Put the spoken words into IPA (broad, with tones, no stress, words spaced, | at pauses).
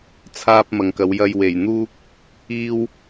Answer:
t͡sʰaː˧p̚ mɐ˨ŋkɐ˨˧wjɐ˧j we˨˩jn̪uː˥k̚ | iː˧w